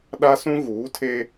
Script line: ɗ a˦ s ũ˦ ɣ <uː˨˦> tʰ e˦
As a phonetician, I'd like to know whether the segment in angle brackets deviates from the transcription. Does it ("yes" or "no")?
no